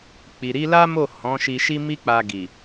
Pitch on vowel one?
low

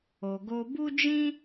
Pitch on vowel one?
low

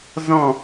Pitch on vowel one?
falling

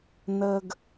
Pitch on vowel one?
high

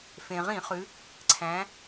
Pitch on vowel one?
low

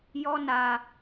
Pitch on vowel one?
high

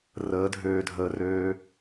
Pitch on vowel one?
rising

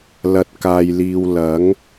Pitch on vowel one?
low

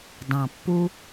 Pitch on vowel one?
low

